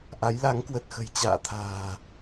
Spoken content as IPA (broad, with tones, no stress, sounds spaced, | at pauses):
ʔ a˨˦ j l a˨˦ ŋ k w ə˨˩ t̚ x ə̤˨˩ j t͡ɕ a̰ː˧˨ t̪ʰ a̤ː˨˩